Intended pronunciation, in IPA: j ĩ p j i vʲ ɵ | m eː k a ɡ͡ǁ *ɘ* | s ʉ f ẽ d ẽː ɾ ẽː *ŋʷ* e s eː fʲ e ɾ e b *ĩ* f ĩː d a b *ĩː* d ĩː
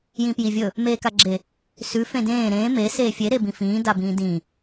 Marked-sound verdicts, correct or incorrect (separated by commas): incorrect, incorrect, correct, correct